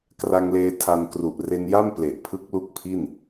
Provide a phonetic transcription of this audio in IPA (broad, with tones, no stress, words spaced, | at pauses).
kra˧ŋleː˧ tʰa˧n kru˨˩ʔre˧nja˥˩m ple˨˩ʔpʰɯ˦˥k̚lu˦˥k̚pʰi˥˩n